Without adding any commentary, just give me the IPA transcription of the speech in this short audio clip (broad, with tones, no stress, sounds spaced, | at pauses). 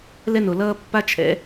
l ɛ˦ n o˨ l ʌː˦ pː a˦ t͡ʃʰ ɛ̰˨˦